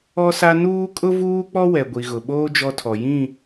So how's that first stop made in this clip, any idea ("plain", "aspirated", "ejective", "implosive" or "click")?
ejective